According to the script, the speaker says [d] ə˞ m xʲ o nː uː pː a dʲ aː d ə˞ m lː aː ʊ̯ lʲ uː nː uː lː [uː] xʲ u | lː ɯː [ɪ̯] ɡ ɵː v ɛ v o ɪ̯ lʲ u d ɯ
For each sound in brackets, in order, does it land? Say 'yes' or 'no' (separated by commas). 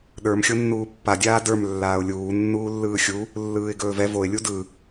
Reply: no, no, yes